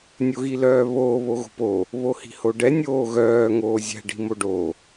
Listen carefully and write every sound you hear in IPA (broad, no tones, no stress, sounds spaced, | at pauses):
nʲ o ɣ i l œː β oː β o ɣ o̤ p o | β o h i̤ h o ɖ ɛ nʲ oː ɣ œː ŋ oː zʲ ɛ̤ ɖ i̤ m o ɖ o